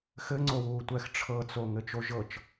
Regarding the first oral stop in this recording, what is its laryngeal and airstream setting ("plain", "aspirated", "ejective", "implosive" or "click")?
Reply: click